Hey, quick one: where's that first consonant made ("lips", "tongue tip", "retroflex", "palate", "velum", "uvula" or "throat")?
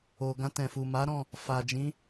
velum